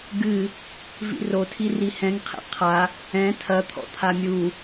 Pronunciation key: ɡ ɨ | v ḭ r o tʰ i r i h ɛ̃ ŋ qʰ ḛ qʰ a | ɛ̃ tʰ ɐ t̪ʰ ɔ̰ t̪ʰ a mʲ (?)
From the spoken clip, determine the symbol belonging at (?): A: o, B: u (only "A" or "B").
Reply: B